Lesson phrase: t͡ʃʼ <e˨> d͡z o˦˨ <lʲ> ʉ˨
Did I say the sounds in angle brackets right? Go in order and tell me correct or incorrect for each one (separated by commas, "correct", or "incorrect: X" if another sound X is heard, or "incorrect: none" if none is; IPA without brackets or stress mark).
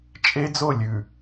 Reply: incorrect: e˦, correct